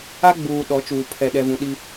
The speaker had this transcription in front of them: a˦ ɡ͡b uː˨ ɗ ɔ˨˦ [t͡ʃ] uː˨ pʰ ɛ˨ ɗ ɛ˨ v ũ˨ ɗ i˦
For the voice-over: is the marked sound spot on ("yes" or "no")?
yes